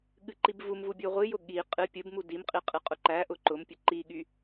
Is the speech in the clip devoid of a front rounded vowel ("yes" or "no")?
no